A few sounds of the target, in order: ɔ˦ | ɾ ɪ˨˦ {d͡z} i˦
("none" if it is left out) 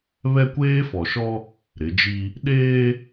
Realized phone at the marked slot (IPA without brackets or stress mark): d͡ʒ